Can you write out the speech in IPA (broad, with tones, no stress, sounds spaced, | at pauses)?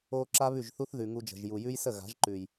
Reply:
o˧ ǁ a˦ β ʉ˦˨ ʒ θ u˦ θ ð ʉ˨ ŋ u˧ d͡ʒ ə̤˨ ʒ j u˨ j ʉ˦ j s ə˦˨ ɣ a̤˨˦ ʒ ǃ ʉ˨ j